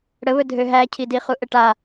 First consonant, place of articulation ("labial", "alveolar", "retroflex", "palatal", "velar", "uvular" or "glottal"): retroflex